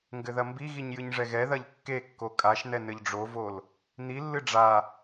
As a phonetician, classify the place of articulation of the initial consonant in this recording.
velar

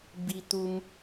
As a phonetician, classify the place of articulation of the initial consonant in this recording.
labial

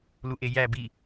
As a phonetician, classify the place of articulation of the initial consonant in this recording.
alveolar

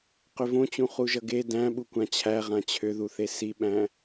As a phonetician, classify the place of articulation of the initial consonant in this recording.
uvular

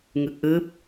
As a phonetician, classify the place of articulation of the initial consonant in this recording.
velar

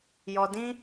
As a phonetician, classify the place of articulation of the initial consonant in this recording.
palatal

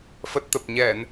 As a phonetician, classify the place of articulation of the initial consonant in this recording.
labial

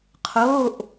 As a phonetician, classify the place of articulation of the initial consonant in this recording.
uvular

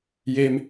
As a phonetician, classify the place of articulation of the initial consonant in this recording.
palatal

